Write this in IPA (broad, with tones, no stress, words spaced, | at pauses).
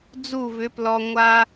d͡zu˦˨vʏ˨˦ plɔ˨ŋʷa˦